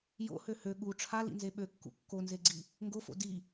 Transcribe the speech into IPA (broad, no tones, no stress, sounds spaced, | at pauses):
j o̰ h ø h ø ɠ u ʈ͡ʂʰ a l ḭ n z e ɓ ø kː ṵ kː o n z e ɡ͡ǀ i | ŋ ɡ o f o̰ d i